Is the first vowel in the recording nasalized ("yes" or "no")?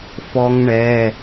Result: no